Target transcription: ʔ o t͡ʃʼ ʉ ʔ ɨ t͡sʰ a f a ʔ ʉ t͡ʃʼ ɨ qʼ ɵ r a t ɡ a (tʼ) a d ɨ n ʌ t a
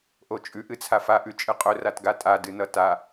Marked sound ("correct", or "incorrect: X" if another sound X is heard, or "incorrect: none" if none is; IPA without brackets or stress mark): correct